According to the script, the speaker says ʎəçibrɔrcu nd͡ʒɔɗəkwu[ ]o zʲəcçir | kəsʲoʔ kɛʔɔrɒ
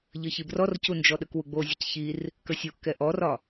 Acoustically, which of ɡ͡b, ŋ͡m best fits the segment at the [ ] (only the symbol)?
ɡ͡b